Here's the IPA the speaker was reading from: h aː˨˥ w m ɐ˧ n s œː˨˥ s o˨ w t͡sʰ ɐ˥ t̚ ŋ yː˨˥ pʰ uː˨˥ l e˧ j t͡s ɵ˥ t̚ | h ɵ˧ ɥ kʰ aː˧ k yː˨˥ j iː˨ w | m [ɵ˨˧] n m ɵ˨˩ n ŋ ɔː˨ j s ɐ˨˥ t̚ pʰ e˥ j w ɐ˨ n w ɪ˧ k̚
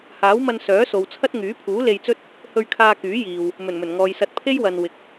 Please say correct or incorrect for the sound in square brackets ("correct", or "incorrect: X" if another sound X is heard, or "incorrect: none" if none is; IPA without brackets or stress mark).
incorrect: ɵ˨˩